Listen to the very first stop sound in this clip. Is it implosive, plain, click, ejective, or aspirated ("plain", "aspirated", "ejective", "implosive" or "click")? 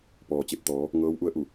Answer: plain